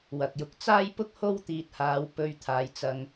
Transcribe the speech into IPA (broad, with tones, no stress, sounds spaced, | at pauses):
w ɐ˨ k̚ j ʊ˧ k̚ t͡s aː˥ j p ʊ˥ k̚ h o˥ w t̪ iː˧ t̚ h aː˧ w p ɵ˧ ɥ t̪ʰ aː˨˧ j t͡s ɐ˧ ŋ